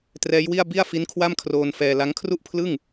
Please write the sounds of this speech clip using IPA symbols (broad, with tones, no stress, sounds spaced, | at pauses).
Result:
t r ɛː˦˥ j w i˥˩ a̯ b i˥˩ a̯ f i˦˥ n kʰ w a˥˩ m kʰ r oː˧ n f ɛː˧ l a˦˥ ŋ kʰ r u˥˩ ʔ pʰ l ɯ˥˩ ŋ